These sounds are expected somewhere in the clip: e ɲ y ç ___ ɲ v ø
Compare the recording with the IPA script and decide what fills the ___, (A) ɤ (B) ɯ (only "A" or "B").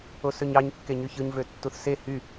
B